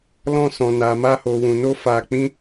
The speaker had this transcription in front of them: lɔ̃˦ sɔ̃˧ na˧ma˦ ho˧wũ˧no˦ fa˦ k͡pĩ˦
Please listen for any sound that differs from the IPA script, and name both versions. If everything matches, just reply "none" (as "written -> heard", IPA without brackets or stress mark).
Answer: none